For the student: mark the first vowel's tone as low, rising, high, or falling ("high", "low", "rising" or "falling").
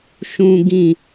high